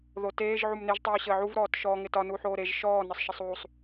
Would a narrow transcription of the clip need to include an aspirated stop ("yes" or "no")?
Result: no